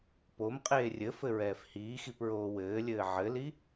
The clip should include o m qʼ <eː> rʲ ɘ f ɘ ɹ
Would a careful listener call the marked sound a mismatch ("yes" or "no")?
no